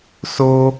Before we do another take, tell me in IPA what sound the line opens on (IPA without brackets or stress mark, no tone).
s